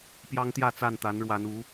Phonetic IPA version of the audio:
pjɑ˦ŋt̪jä˥˨t͡sa˥˨nt̪a˨˦n ɻwa˨˦n u˨˦

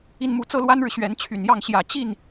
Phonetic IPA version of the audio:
i˥˧nmu˥˩ t͡sɤ˥lwa˥nɻɻ̩˨ ɕɥɛ˧˥nt͡ɕʰy˨˩njɑ˥˩ŋ ɕjä˨˩ t͡ɕi˥˩n

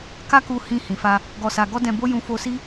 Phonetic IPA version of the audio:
ka˦ku˧ hĩ˧ hĩ˨fa˧ | ɡɔ˧sa˧ ɡɔ˦dɛ̃˧bo˦ jũ˦fo˦ si˦

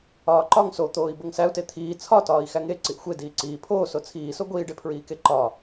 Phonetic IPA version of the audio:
ɒːǃɒŋ sot̪oːi̯ boŋsæu̯te t̪ʰiː t͡sʰɒtɒːi̯ xæŋe ǀiʔxʷe diːǀiː pʰoːso t͡sʰiːso ɡʷiːɖepʰɹiːke ǃɒ

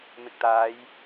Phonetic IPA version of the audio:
mɪ˨k̚t̪aː˨˧j

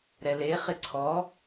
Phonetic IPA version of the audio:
ɾɛle χɪǀʰɔ

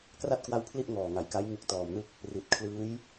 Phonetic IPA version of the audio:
kra˥˩t̚kwa˦˥w pʰli˥˩ʔ ŋɔː˨˩ŋa˩˦jka˦˥j ŋu˦˥k̚tɔː˨˩mnɯ˥˩k̚ | ri˨˩t̚kʰlɯː˦˥j

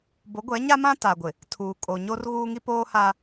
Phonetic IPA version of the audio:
bo˨˦ɡʷɛ˨˦ɲa˦mã˦ ta˨ɡʷɪ˨ | tʰuː˨kʼo˨ ɲo˦rɣuː˦ŋi˦ poː˦ha˦

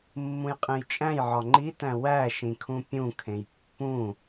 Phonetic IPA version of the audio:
mːũjqʼẽjt͡ʃʼæ̃jʕɒ ŋ͡ǃitæ̃ wæ ʃĩkʰũpʲũkʰẽj pːũ

